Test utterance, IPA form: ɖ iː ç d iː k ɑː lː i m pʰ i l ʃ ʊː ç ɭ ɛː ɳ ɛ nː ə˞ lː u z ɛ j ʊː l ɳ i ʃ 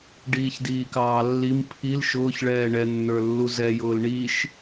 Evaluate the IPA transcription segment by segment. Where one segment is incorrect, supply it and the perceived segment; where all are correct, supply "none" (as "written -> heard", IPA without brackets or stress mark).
none